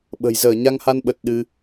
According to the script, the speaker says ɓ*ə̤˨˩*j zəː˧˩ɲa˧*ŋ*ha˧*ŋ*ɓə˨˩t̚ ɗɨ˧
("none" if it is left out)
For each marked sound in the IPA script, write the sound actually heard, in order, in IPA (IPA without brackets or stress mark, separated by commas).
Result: ə̤˨˩, ŋ, n